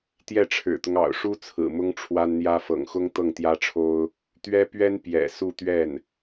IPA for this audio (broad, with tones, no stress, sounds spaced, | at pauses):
t̪ j ɛ˥˩ ʈ͡ʂʰ ɻ̩˨˩ t̪ ʊ˦ ŋ ɑ̰˨˩ ʊ̯ ʂ u˥ t͡sʰ ɹ̩˨˩ m ʊ˥ ŋ ʈ͡ʂʰ w a˥ n n̪ j ä˥ f ɤ̰˨˩ ŋ x ʊ˥ ŋ t̪ ɤ˥˩ ŋ t̪ j ä˥ ʈ͡ʂʰ o˥ ʊ̯ | t̪ ɥ ɛ˥ p ɥ ɛ˥ n p j ɛ̰˨˩ s u˥˧ t̪ ɥ ɛ˥˩ n